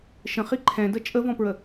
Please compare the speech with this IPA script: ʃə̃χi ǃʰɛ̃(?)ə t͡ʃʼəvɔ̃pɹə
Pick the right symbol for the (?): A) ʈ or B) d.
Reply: B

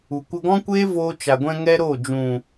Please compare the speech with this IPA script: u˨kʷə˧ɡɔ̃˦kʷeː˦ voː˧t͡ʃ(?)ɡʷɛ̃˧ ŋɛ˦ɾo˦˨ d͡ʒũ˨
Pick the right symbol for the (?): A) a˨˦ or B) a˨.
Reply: B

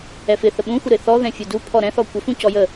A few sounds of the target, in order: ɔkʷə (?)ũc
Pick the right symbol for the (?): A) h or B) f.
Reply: B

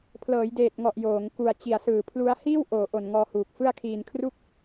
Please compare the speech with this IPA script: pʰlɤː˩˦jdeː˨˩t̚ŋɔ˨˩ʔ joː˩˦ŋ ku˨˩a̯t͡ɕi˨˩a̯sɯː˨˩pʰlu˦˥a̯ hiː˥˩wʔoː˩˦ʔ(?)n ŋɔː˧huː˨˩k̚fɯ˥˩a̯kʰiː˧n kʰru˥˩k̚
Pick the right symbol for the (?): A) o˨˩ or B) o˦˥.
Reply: A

